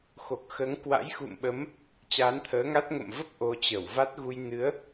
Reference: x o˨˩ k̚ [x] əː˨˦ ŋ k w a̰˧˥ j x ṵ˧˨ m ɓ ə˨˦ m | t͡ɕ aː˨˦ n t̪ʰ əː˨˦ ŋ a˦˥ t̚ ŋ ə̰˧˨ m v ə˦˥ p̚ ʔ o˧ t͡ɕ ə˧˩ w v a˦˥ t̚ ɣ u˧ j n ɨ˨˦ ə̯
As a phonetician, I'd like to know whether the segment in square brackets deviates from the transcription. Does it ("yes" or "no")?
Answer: no